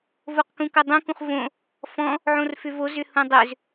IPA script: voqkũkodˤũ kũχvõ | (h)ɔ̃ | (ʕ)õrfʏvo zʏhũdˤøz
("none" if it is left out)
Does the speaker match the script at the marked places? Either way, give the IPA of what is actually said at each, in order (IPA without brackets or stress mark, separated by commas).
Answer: f, ʕ